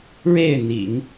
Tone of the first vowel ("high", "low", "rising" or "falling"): falling